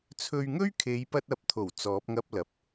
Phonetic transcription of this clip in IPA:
t͡sʰɵ˧ɥŋɵ˥ɥ kʰe˨˧jpɐ˧t̚ɐ˨˥p̚t̪ʰo˨˩w t͡sɔː˨˥p̚ŋɐ˥p̚lɐ˨p̚

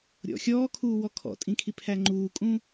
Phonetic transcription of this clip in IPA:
ɾʲɔ̰ xʲɔːkʰuːwɔ kʰɔ̰tʼĩkʰipʰæ ŋ͡ǃuːkʼũ

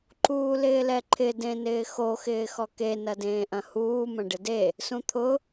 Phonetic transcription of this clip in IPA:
ǃuːlɪːlɛǃʰɪ dẽnɪːxo xɪːxɔke nɐdẽːʔɐ̃huː mɐ̃ɖɪde | sũt̪ʰʊ

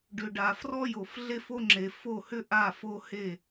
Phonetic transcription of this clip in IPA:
ɖʏ˨ɖa˨ frɔ˦jo˨fɮe˦fo˦ ŋ͡ǁe˨ fo˦˨hʏ˦ʔa˦˨ fo˦he˦˨

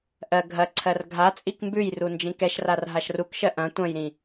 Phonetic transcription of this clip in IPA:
ʔɜ ɡʱɐǀʰɜr ɡʱa t͡sʼikmbʉjru nd͡ʒĩkɛʃrar ɦaʃrukʃɜ ʔɐ̃ tʷɐ̃jɾĩ

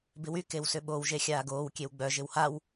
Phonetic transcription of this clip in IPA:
bɪwy kewsʏɓow ʒexʲaːɡoːw kʲewɡ͡bœ ʒɪwhaw

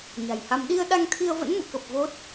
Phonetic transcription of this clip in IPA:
ɲa̤˨˩jha˧m ɗi˧ə̯ ɗa˧ŋt̪ʰi˧ə̯və̰˧˥n mṵ˧˨kə˨˩p̚ vo˦˥t̚

